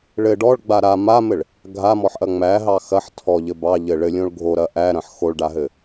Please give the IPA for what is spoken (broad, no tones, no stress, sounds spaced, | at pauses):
ɭ ɘ ɖ ɔ ɭ ɡ͡b a ɾ a m a m ɘ ɭ | ɡʱ a m ɔ ħ ʔ ɐ ŋ͡m æ ɦ ɑ x ɐ ħ tʰ ɔ ʎ ɘ b ɑ ʎ ɘ ɭ ɘ lʲ õ ɭ ɡʱ o ɾ ɐ ʔ æ ɾ ɐ̃ ħ x o ɭ ɖ a ɦ ɘ